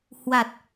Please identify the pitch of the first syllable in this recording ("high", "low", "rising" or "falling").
low